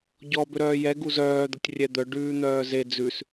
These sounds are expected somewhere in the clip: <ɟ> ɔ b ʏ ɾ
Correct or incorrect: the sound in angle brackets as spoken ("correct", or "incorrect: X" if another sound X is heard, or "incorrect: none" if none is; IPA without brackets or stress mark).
correct